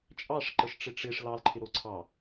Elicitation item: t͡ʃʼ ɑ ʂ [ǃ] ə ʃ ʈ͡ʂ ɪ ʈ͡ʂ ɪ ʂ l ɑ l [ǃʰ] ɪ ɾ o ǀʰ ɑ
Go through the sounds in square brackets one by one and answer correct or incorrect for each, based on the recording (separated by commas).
correct, correct